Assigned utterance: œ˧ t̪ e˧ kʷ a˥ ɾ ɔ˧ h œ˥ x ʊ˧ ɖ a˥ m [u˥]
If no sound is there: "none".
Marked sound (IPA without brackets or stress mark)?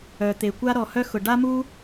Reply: u˥